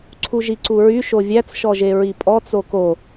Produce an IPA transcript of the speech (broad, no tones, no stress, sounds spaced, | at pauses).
ǀʰ u ʒ i ǀ u ɹ y ʃ o vʲ æ t͡s ʃ ɔ ʒ e ɹ i pʼ ɔ t͡s o k o